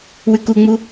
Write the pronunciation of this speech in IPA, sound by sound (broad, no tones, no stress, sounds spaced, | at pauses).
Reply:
w ʉ k u ŋ͡m u